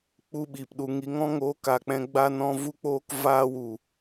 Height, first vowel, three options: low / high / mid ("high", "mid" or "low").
high